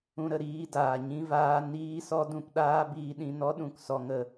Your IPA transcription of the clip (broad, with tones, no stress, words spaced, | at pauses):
ũ˧ɾə˨ ɾiː˧daː˨ ɲĩ˧vaː˧ niː˦sɔ˦ dũ˧pɗaː˦ biː˧ɗĩ˧nɔ˦ ɗũ˦˨ksɔ˧ŋə˧